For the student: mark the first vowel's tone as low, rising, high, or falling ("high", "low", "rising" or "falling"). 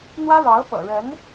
high